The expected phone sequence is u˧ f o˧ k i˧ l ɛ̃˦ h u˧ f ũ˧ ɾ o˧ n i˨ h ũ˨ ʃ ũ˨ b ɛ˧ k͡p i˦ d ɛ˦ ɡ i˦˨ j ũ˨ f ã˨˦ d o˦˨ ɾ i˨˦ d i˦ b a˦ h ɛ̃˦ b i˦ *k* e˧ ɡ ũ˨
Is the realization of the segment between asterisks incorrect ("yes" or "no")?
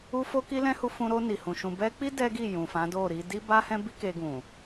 no